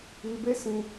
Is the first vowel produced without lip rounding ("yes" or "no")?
yes